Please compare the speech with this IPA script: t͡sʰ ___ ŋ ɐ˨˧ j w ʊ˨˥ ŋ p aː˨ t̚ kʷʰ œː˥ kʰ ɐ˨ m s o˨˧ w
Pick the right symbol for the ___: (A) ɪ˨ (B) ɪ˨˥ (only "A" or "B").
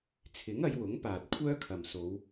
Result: B